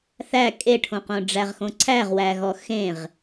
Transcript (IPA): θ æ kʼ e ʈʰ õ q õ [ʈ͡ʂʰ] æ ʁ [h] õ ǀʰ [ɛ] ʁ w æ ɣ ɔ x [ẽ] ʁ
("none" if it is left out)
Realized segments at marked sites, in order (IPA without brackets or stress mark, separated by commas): ɖ͡ʐ, x, æ, ẽ